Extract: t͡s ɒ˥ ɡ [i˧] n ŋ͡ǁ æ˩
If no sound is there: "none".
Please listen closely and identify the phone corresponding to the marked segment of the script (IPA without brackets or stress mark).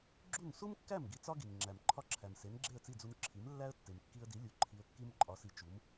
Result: i˩